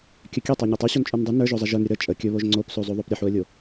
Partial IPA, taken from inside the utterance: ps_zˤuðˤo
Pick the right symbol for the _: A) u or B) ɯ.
A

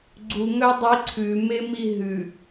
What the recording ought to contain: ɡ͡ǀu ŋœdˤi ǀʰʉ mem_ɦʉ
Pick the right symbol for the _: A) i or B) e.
A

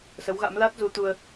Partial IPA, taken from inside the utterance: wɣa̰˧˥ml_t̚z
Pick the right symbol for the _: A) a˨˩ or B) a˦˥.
B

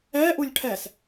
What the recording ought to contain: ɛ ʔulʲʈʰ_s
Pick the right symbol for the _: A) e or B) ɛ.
B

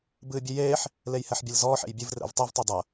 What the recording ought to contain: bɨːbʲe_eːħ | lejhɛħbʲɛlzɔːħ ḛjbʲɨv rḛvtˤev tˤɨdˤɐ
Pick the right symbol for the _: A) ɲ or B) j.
B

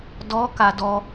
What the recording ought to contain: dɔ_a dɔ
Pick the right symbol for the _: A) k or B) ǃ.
A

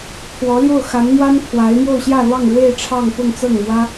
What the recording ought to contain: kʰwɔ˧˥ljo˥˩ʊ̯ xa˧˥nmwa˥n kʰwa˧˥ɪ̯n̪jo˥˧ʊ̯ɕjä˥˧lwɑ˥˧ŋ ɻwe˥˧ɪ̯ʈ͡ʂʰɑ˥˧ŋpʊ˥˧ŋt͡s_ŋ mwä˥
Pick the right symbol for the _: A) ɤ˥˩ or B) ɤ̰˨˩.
A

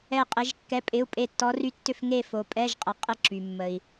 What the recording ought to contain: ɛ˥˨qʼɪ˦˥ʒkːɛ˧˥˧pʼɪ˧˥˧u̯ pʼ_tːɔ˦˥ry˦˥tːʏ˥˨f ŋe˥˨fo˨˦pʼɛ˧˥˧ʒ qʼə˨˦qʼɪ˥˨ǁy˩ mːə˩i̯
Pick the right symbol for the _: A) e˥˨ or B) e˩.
A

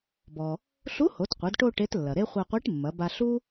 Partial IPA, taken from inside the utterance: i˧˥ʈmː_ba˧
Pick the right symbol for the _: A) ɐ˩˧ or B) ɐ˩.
A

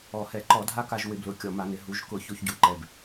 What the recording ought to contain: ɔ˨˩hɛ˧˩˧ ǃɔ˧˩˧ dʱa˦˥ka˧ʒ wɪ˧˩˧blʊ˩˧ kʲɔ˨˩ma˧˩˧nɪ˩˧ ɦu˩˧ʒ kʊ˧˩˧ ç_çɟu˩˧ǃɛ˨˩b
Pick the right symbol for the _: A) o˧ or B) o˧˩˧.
A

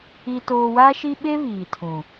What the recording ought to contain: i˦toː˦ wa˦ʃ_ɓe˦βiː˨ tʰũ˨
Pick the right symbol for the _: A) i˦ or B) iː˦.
A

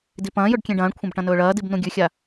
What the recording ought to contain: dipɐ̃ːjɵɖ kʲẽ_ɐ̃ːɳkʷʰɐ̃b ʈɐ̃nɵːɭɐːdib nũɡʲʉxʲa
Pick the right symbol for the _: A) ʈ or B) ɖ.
B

